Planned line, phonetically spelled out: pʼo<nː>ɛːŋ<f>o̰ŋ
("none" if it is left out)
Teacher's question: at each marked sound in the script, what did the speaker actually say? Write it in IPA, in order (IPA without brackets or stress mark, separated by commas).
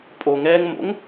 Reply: ŋ, m